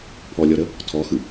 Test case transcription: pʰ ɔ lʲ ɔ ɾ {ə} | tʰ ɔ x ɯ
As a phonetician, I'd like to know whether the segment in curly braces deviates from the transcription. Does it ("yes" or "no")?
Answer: no